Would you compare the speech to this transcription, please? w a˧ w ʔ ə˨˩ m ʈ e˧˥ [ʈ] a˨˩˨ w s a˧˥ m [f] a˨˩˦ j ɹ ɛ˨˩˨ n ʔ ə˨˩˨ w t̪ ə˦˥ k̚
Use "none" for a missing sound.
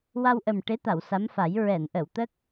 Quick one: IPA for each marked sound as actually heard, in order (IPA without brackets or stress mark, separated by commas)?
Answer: t̪, f